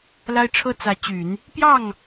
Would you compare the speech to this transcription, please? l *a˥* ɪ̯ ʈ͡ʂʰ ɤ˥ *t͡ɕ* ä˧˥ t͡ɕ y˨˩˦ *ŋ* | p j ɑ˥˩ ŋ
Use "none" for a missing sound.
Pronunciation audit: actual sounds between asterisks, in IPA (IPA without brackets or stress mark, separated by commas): a˥, t͡s, n